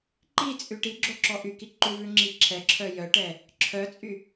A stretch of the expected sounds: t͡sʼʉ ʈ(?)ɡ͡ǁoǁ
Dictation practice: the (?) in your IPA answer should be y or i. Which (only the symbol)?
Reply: i